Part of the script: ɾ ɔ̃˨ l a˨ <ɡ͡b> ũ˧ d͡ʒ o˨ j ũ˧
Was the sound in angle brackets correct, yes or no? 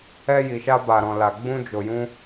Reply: yes